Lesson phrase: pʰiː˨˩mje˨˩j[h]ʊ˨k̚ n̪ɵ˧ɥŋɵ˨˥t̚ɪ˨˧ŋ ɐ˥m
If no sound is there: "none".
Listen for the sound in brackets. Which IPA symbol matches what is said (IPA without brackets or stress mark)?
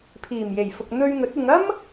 f